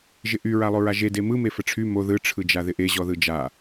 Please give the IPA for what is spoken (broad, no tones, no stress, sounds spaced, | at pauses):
ʒ ɪ ʔ y ɹ a lˠ o ɹ a ʒ e d e m ɯ m e f ə ʈ͡ʂʰ y m o ð ɯ ʈ͡ʂʰ ɯ d͡ʒ a ð ɪ ʔ e ʑ ɔ ð ɯ d͡ʒ a